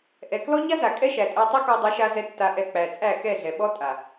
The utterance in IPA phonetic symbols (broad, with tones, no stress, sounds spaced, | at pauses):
ʔ ɛ˨ k l ɔ˦ ɲ a˦ z a˨ kʼ ɛ˦ ʃ æ˨ tʼ ɛ˧ tˤ ɛ˦ k ɔ˧ dˤ ɛ˨˦ ʃ a˧ z ɛ˦ tː a˧ ʔ ɛ˧ k͡p æ˨ t͡sʼ æ˦˨ k ɛ˦˨ ɮ ɛ˨ ɓ ɔ˦ tʼ a˨